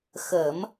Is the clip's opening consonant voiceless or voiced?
voiceless